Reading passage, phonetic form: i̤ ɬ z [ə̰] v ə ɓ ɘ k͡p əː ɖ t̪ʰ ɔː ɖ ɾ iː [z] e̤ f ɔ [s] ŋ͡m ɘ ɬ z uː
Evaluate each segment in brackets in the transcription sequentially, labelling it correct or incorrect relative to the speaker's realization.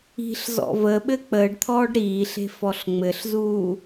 incorrect, incorrect, incorrect

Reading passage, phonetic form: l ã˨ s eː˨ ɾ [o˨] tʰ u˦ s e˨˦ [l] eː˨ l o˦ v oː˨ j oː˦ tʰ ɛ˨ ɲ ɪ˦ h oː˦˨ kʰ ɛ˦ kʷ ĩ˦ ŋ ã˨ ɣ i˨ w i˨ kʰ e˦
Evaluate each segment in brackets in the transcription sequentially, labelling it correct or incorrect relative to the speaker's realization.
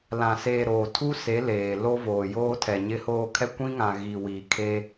incorrect, correct

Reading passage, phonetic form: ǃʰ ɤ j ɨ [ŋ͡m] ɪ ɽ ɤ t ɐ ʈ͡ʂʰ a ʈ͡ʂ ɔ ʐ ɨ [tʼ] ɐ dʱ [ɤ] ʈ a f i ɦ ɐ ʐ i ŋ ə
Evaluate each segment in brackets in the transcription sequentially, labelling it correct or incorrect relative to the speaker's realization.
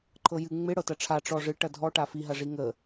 correct, incorrect, incorrect

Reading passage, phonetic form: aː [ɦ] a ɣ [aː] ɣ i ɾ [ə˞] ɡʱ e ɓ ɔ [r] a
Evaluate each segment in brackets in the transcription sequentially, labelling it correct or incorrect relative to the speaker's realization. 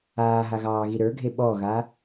correct, incorrect, correct, incorrect

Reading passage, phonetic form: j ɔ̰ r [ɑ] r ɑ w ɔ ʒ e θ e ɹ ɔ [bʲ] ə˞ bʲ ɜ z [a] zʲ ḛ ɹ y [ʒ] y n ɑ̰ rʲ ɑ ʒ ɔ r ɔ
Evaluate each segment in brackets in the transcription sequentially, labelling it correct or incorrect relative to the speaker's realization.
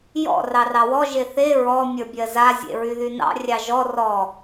correct, incorrect, correct, incorrect

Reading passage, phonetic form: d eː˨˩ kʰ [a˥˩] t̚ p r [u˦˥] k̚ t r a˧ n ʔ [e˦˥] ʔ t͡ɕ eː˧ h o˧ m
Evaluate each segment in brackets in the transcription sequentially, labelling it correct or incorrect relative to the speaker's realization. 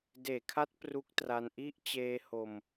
incorrect, correct, incorrect

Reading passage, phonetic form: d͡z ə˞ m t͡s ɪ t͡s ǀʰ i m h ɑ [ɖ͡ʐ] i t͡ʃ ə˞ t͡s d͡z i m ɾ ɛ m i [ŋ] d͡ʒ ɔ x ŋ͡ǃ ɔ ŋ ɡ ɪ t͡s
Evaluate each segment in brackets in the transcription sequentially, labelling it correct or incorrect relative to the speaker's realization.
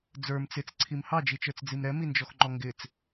incorrect, incorrect

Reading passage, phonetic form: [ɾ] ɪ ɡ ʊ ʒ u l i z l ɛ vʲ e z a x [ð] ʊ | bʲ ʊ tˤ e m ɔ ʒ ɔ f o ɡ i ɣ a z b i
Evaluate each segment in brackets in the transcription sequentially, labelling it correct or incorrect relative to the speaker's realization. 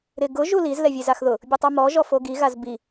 correct, correct

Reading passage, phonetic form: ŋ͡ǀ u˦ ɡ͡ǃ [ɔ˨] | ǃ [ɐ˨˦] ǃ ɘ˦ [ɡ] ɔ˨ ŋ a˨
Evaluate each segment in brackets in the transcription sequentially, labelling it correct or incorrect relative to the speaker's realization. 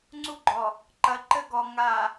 correct, correct, correct

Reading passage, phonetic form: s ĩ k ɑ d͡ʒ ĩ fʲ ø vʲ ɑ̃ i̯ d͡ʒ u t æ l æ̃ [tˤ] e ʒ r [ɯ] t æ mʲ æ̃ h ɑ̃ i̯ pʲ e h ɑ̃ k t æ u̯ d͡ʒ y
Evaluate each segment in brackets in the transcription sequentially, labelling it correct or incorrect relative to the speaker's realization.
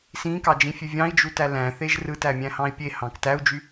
incorrect, correct

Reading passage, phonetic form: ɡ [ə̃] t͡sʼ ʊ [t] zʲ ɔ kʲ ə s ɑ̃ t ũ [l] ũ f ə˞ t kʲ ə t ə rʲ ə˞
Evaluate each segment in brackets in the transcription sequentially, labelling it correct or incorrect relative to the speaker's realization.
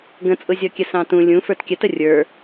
correct, incorrect, incorrect

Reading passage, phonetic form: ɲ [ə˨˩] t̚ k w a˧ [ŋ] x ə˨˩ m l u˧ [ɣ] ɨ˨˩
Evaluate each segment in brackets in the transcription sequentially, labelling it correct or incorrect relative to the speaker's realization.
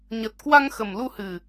correct, correct, incorrect

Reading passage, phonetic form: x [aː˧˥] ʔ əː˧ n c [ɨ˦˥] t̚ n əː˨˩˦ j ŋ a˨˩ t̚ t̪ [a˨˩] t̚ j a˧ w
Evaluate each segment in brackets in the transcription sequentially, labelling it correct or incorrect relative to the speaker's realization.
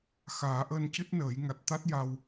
incorrect, correct, incorrect

